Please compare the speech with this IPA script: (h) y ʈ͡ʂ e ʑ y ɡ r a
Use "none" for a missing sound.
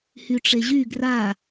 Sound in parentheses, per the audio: h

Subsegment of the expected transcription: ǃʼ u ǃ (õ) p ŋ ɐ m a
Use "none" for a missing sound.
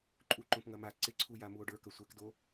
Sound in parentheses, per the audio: õ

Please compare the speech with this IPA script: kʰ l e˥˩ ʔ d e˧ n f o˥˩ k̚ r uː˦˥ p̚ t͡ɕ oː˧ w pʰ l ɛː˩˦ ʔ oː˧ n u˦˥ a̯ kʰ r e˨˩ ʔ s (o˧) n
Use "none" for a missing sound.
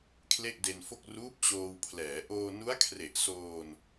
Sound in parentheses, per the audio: oː˧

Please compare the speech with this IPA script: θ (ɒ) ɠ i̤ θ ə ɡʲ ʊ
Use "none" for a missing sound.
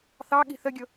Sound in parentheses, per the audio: ɑ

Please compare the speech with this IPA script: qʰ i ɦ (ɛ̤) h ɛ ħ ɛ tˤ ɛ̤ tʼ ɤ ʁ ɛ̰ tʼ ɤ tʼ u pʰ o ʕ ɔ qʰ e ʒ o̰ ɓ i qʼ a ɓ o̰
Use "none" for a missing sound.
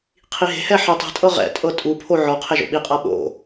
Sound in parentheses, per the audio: e̤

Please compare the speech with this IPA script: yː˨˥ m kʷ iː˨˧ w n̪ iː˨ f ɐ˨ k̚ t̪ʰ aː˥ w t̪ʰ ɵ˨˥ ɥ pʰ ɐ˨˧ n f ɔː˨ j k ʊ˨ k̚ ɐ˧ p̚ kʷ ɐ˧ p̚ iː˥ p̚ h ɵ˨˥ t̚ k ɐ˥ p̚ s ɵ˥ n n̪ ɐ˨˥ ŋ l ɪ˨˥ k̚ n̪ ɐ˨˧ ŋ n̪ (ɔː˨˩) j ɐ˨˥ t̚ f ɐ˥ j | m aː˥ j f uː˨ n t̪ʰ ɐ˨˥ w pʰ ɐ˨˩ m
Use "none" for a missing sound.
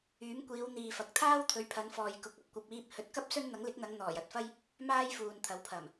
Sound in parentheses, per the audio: ɔː˨˩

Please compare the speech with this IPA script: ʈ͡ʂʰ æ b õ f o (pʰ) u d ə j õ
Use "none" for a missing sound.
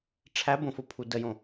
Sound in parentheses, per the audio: pʰ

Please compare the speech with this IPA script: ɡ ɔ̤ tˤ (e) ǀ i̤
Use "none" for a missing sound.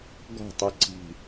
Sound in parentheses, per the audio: i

